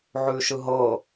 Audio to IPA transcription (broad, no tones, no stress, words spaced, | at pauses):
ʕʉʃɯɦɤ